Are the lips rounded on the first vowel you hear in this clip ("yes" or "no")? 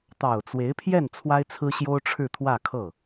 no